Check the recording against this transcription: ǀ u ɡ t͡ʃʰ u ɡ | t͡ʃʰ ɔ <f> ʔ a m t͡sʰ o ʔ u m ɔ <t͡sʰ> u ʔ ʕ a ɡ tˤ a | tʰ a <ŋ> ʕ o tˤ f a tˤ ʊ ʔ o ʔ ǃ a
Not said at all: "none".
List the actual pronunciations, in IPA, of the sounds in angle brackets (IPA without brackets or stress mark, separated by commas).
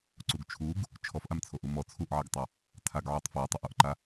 f, t͡sʰ, ɡ